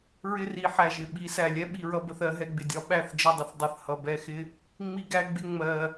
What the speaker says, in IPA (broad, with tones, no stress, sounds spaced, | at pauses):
ɹ ɪ˦ r i˨˦ ħ æ˨ ʒ ɪ˨ ɓ i˨˦ s æ˨ lʲ ɛ˦ ɓ i˧ ɹ ʌ˦ b ə˧ θ ɜ˦ ɦ ɛ˧ ɡ͡b ɪ˨ dʲ ɒ˧ ɓ æ˦˨ θ d͡ʒ ə˦˨ dˤ ɪ˧ θ dˤ ə˨˦ θ h ʌ˧ b ɛ˧ x ɪ˦ | ŋ͡m i˦ ɡ æ˦ ɡ͡b ɪ˦ ŋ͡m ɜ˧